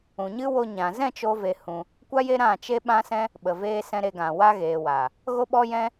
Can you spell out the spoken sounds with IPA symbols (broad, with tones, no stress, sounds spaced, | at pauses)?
ũ˨ ɲ ɨ˦ w o˧ ɲ ã˨ z ɛ̃˦˨ t͡ʃ o˦ v e˧ h ũ˧ | kʷ a˦ j e˦ ɾ ã˦˨ t͡ʃ e˦ ɓ ã˦ s ɛ̃˦ | ɓ ə˨ v eː˧ s ɛ̃˧ ɾ e˧ ɡ ã˨ w a˦ ɣ eː˨ w a˨ | ɣ o˦ ɓ ɔ˦ j ɛ̃˦